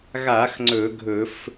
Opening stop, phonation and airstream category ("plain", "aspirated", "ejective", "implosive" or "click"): click